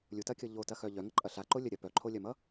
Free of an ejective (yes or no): no